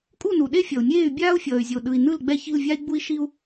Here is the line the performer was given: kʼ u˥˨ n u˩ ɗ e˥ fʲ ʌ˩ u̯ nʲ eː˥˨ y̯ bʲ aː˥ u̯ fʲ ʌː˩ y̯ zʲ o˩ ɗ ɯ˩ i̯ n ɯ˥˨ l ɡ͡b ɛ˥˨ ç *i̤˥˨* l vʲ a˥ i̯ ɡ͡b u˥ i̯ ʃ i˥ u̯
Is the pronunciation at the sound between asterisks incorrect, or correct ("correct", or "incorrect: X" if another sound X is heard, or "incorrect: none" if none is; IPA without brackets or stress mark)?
correct